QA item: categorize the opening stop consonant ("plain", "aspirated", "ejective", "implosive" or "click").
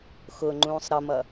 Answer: click